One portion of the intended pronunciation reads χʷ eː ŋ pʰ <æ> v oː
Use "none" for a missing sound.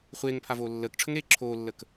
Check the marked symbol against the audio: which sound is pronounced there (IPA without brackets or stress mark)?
a